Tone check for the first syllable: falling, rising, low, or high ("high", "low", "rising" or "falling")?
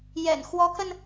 low